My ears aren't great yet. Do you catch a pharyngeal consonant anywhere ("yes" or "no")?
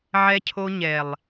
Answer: yes